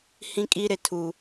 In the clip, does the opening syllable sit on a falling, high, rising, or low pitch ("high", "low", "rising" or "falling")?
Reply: high